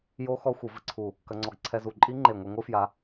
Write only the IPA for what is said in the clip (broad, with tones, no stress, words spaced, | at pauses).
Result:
jo˦˥ xɔ˦˥xʷɨ˨˩˦vɘ˧ǀʰu˧˩ | kɐ˧ŋ͡ǀɔ˧˩ɡǀʰɛ˧ zu˧˩ ǃʼi˦˥ŋ͡ǃe˧˩ŋʷe˧ ŋʷɨ˦˥fja˧